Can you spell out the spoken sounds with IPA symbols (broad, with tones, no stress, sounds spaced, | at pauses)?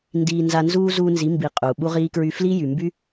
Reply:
n d iː˧ n z a˧ n z uː˦ z uː˧ n z i˨˦ m b i˨ qʼ uː˨ ɓ u˦ ʁ iː˦ k ɹ y˦ f l iː˦ j y˨ m b y˦